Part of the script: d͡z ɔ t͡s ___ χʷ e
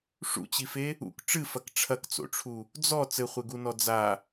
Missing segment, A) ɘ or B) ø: A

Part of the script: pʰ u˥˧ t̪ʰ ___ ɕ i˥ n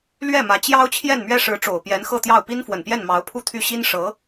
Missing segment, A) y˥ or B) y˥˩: B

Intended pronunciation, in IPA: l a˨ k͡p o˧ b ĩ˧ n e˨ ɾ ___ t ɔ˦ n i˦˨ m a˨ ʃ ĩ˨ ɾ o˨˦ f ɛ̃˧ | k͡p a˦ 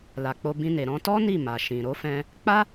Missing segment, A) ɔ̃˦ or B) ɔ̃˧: B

